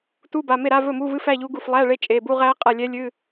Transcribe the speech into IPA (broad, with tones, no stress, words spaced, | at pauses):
tu˧˥˧ba˩˧˩me˥˩ɾa˧˥˧ vɵ˥˩mu˧˥˧vɨ˧˥˧f æ˧˥˧ʎu˦˥ɡu˥˩f lˠæ˧˥˧ɭe˧˥˧ t͡ʃʼe˩˧˩bu˧˥˧ʁæ˦˥qʼa˥˩ lʲɛ˦˥lʲɨ˧˥˧